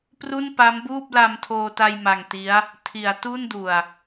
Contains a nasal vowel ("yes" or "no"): no